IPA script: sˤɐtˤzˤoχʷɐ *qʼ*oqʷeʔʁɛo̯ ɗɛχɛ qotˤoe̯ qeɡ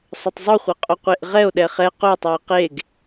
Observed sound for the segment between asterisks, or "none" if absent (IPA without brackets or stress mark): qʼ